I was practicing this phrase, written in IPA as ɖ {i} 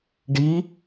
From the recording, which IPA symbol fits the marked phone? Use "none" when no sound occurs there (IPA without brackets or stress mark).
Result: i